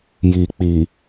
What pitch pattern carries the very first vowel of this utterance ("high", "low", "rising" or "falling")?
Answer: low